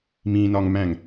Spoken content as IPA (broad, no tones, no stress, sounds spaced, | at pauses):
m ĩ n ɒ ŋ m æ̃ ŋ